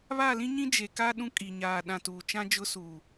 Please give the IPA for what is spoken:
β a˦˨ l ĩ˦ ɲ ĩ˦ d͡ʒ e˨ k a˦ ɗ ũ˦ kʼ i˨ ɲ aː˨ ɗ ã˨ t uː˨ t͡ʃ ã˦ d͡ʒ ʊ˦ s uː˨

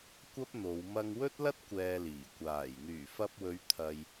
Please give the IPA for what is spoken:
kʷ ɐ˥ p̚ n̪ o˨˧ w m ɐ˧ ŋ w ɵ˥ t̚ l ɐ˥ t̚ kʷ ɛː˧ l iː˨˩ kʷ aː˨˩ j n̪ yː˨˩ f ɐ˧ p̚ w ɵ˨˧ ɥ t̪ʰ ɐ˧ j

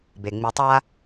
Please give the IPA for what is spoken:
b e˩ ŋ͡m i˨ tˤ a˦

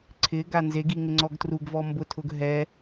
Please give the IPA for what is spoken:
ǀʰ ɪ ɡ a n z e ɡ i ŋ ɪ ŋ͡ǀ ɔ ɡ t r u ɡ v ɔ m b ʊ tʰ ʊ ɡ ɦ ɛ

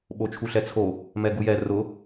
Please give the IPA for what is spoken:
ɓ o t͡ʃʰ u ɬ ɛ t͡sʰ o | m ɛ ɡ u j ɛ r ʊ

